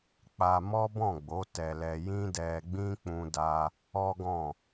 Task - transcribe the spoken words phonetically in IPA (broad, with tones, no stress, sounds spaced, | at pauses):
k͡p a˧ m ɔ˦ b ɔ̃˦˨ ɡ͡b o˨˦ t ɛ˧ l ɛ˧ j ĩ˦ d ɛ˧ ɡ͡b ĩ˦ k͡p ũ˦ d a˦ | ɔ˦ ɡ ɔ̃˦˨